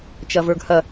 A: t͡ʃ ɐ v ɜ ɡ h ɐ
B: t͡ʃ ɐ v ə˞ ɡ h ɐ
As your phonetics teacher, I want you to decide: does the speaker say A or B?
B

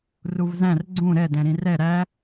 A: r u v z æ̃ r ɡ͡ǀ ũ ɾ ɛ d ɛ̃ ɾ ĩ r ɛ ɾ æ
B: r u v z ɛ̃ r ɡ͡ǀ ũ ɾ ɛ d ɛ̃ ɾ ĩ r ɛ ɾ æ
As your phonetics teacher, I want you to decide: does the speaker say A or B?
A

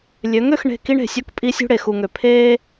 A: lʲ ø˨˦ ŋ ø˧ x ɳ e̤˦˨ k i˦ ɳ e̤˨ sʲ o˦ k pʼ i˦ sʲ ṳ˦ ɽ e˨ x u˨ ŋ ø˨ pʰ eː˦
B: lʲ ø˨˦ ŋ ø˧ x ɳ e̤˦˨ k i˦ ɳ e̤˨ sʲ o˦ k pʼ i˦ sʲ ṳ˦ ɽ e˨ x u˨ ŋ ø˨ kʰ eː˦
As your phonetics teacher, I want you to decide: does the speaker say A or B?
A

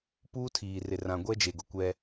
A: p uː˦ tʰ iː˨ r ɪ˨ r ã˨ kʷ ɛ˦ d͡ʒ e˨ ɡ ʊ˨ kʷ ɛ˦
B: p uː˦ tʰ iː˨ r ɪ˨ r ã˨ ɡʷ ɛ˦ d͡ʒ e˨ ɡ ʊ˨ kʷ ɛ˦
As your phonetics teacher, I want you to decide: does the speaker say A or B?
B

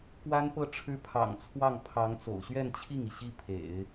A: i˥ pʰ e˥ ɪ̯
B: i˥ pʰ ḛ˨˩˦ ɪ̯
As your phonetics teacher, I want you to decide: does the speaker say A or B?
B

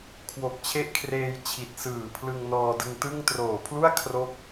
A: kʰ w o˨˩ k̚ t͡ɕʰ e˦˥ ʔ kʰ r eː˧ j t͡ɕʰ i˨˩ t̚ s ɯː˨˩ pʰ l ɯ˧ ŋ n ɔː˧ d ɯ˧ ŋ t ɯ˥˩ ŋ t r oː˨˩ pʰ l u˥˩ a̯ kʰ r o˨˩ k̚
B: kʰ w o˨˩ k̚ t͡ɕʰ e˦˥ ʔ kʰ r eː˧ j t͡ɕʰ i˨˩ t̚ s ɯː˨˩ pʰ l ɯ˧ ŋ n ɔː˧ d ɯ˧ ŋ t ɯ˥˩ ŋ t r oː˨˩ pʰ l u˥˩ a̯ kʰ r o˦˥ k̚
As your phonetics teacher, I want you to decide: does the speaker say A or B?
B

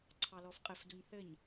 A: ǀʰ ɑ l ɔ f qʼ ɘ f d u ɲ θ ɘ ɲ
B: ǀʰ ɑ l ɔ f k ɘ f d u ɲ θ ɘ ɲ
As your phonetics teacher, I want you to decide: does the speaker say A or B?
A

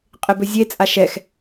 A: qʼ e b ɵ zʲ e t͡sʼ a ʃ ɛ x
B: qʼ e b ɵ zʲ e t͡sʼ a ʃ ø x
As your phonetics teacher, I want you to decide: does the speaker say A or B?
A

